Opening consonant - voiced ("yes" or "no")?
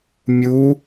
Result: yes